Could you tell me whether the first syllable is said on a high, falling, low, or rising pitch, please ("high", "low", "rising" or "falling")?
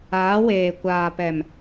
rising